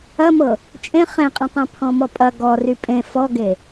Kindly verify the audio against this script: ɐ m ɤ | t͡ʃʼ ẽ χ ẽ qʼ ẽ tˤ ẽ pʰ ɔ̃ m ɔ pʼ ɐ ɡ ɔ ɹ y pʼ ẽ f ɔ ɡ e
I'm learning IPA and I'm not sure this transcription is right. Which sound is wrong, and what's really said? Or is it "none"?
ɹ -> r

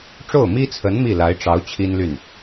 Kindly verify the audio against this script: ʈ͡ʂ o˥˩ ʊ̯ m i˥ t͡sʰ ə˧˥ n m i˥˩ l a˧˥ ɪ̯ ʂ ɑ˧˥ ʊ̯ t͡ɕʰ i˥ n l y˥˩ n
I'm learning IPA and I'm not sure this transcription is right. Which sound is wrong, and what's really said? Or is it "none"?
ʂ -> ʈ͡ʂ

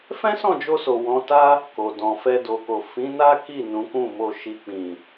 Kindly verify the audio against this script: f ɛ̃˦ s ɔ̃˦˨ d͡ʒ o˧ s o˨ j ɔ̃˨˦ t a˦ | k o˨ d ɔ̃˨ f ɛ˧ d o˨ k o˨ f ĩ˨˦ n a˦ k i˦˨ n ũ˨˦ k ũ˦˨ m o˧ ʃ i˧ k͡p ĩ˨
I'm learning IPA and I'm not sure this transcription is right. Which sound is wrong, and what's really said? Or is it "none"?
j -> w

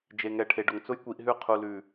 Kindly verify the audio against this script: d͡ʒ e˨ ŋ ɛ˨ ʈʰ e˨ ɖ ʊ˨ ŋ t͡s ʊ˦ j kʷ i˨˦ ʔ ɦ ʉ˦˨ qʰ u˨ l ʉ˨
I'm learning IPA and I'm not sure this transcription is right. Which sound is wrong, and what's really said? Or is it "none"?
none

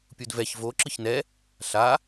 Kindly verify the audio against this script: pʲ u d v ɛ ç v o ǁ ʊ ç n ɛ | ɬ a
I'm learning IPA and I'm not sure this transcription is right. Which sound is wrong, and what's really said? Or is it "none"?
ʊ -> ɯ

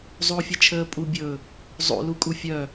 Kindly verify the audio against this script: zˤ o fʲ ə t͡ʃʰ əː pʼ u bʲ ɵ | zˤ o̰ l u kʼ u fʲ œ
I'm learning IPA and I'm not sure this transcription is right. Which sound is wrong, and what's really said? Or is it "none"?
none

